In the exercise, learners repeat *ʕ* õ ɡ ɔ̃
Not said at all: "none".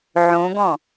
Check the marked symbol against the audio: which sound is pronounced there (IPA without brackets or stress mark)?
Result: ʕ